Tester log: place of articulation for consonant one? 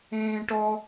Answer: retroflex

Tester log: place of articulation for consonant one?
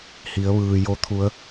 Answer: glottal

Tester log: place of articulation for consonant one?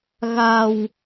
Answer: velar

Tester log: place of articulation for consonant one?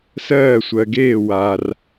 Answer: alveolar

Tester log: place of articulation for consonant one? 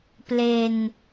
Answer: labial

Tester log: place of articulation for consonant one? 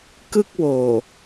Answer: velar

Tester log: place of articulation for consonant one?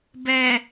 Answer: labial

